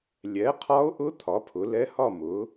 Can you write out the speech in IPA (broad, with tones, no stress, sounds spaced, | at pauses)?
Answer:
lʲ ɛ˨˥ qʰ ɒ˦˥ o̯ ʔ ʊ˦˥ t̪ʰ ɒ˨˥ pʰ ʊ˨˥ l ɛ˦˥ h ɒ˥˧ m ʊ˨˥